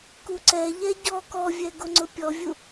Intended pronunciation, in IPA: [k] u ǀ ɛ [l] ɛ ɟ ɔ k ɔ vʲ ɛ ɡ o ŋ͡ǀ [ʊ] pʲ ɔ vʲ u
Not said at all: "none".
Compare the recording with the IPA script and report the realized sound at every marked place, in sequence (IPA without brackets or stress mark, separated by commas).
k, ʎ, ʊ